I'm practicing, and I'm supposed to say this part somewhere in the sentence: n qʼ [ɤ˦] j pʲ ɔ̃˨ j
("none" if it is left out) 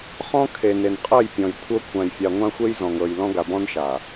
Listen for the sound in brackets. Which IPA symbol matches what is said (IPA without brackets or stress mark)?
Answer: ɤ˦˨